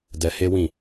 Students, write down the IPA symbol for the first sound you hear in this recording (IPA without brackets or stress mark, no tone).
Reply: d